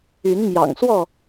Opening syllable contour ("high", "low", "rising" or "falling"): rising